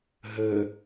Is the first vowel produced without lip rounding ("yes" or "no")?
yes